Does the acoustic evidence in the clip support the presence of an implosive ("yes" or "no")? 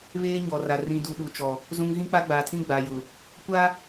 yes